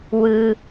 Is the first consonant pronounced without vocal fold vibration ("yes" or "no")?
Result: no